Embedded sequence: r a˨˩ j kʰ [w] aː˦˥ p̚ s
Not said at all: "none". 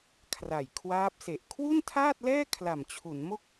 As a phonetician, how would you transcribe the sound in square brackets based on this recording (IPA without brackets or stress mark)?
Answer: w